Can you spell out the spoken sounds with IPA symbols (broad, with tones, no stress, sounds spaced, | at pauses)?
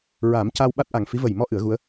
ɹ a˨˩˦ m c a˧ w ɓ a˦˥ t̚ ʔ a˨˩ ŋ f i˧˥ v ə˨˩ j m ɔ˧ ʔ ɨ˨˩˦ ə̯ ɣ u˧˥ ə̯